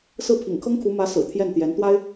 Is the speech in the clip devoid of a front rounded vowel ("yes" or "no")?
yes